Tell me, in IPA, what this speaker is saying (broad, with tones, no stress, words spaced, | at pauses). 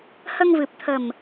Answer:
hə˧ŋvɨ˨˩p̚t̪ʰə˨˩m